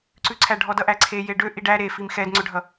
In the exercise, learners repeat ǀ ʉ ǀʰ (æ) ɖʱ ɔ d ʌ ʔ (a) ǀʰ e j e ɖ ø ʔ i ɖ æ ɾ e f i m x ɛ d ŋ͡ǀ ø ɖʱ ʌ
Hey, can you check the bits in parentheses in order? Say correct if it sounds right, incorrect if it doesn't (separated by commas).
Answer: correct, incorrect